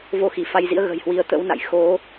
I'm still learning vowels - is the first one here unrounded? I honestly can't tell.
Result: no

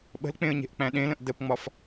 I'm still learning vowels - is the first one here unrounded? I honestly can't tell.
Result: yes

